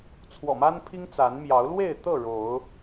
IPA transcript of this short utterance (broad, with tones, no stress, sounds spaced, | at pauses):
t͡sʰ w ɔ̰˨˩ m a˦ n pʰ i˦ ŋ t͡s a˨˦ n m j ɑ˨˦ ʊ̯ l w e˥˨ ɪ̯ t̪ ɤ˥˨ ɻ o˨˦ ʊ̯